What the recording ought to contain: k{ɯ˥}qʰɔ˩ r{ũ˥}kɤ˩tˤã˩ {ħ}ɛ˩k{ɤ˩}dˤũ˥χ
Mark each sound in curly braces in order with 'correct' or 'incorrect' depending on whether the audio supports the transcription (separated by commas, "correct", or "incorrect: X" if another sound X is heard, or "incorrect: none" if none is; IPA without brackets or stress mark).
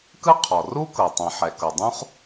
correct, incorrect: u˥, correct, correct